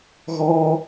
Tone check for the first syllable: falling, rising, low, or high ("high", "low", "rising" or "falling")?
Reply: high